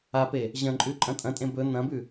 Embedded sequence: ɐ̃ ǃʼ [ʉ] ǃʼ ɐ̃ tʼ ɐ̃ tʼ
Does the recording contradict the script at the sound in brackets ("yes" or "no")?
no